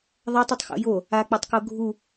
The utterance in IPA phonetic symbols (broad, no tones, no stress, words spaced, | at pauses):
ðˤɐtˤitˤxo̰ jo | ak͡patˤko ɡʱu